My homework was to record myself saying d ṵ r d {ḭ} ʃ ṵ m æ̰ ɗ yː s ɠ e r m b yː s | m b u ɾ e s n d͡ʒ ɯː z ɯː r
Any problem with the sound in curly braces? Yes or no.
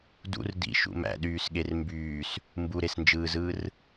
no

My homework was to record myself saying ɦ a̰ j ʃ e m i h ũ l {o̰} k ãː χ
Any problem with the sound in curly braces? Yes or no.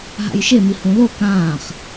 yes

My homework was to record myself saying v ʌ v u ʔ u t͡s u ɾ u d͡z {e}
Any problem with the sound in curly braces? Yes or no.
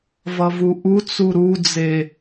no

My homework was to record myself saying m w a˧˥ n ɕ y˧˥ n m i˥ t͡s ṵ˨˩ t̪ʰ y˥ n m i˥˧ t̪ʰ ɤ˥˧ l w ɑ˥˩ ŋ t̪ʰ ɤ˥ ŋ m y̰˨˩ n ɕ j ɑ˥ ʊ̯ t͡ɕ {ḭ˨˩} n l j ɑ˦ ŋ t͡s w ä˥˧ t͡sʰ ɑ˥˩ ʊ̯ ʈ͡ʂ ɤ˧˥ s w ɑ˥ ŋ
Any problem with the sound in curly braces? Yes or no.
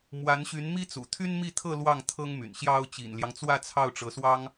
no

